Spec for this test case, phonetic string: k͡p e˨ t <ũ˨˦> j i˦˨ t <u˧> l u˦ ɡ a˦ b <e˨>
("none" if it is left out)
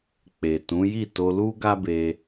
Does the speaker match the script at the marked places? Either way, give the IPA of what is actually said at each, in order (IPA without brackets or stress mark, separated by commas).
ũ˨˦, o˧, e˧